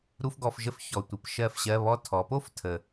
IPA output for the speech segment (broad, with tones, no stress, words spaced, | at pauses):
ɾu˥fɡɔ˧˥˧fʒə˥f çɔ˨˩tʷə˨˩p ʃɜ˥˩fɕɜ˧˥˧ βɔ˧˥˧ tʰɔ˩˧po˥f tʰə˨˩